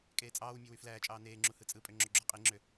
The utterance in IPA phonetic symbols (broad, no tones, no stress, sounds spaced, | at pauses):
kʼ eː t͡sʼ ɑː w mʲ ø w y f l æː t͡ʃʼ ɑː n eː ŋ͡ǁ u h ɯ t͡sʼ ɯ pʼ ø ŋ͡ǁ o ɡ͡ǁ o qʼ i ŋ͡ǁ ø